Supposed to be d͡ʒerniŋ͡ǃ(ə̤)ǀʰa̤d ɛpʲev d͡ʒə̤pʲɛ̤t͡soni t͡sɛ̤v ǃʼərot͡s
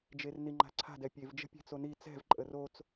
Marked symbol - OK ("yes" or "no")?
no